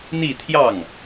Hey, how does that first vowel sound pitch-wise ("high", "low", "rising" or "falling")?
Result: falling